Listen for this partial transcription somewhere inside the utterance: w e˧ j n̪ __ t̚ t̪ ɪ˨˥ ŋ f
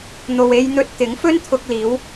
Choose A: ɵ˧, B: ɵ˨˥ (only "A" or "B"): A